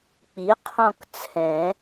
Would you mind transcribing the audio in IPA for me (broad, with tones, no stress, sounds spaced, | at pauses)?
k͡p i˩˥ qʰ ɔ̃˦˨ k t͡sʰ ɛ̃˨˩˦